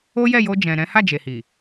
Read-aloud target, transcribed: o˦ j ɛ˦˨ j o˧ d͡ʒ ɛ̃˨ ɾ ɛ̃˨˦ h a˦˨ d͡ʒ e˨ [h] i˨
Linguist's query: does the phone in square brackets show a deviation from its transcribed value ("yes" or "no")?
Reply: no